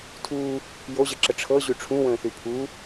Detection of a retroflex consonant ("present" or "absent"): present